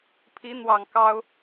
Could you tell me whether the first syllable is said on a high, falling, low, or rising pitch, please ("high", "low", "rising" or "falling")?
rising